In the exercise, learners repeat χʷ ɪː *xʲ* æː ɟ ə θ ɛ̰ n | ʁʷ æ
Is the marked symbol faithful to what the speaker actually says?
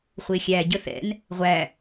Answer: yes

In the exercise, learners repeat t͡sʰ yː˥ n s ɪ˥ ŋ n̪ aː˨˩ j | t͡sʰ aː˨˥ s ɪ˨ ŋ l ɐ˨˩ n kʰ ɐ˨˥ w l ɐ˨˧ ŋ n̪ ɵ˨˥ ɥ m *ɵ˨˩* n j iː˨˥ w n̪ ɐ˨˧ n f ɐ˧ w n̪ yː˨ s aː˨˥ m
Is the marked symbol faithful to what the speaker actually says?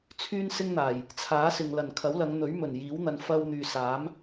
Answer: yes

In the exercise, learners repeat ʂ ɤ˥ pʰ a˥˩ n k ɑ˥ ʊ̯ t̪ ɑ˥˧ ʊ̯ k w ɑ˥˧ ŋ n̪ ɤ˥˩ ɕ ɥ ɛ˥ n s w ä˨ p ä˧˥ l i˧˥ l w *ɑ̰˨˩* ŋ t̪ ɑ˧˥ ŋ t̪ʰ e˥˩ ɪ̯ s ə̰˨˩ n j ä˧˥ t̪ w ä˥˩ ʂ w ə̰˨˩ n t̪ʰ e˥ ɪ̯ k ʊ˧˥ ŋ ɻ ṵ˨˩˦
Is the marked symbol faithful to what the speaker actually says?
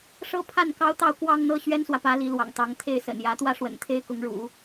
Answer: yes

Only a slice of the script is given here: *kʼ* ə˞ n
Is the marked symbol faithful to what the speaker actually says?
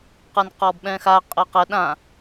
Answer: no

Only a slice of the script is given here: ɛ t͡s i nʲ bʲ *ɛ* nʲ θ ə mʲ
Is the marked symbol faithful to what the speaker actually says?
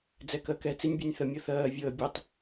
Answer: no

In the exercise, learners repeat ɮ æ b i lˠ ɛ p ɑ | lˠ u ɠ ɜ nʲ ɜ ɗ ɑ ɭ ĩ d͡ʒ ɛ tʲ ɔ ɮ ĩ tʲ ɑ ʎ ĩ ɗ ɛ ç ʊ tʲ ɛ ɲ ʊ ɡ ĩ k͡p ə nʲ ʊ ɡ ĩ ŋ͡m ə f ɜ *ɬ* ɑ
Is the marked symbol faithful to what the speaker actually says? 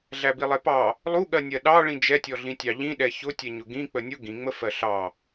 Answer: yes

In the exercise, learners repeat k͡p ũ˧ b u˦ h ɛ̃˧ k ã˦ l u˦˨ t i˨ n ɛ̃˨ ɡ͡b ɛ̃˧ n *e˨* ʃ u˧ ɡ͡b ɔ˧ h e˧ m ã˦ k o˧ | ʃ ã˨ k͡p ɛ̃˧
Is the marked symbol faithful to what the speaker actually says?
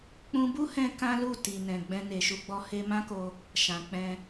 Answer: yes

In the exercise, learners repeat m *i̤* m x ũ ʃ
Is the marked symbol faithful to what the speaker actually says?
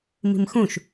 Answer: yes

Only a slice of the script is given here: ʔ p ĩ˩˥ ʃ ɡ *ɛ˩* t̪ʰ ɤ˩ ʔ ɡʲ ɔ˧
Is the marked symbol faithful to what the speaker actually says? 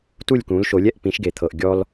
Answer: no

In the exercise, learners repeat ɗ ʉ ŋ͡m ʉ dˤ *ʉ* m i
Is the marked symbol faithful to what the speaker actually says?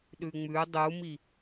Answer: no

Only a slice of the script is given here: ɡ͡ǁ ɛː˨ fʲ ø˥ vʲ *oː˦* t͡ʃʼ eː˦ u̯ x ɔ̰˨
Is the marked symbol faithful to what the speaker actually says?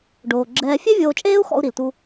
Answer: no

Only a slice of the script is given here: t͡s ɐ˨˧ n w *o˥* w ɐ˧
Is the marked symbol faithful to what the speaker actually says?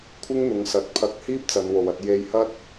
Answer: no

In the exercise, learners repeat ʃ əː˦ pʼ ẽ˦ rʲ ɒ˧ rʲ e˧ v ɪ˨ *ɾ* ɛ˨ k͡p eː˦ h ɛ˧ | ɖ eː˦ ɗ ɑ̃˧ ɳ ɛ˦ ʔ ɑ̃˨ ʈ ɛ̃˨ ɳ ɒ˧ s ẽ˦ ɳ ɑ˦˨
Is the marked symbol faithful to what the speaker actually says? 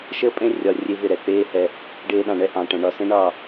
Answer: yes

